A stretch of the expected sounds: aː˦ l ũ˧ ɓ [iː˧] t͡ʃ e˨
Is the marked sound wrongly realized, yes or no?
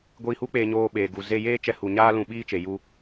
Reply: yes